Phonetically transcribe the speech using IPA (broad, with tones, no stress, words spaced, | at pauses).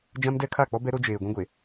d͡ʒã˦mdɛ˦ kʰa˦˨k͡pɔ˦bɛ˦ ɾo˦d͡ʒeː˨ɡʷĩ˦ɡʷe˨